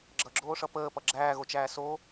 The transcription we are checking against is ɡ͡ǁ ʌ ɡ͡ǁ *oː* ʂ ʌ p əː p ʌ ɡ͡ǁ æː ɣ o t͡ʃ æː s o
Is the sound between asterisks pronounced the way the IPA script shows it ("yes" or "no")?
yes